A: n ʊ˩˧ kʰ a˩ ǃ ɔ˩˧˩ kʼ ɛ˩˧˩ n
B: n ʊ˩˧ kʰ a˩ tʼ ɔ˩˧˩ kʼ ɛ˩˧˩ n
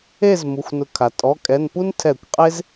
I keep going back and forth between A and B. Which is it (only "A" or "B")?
B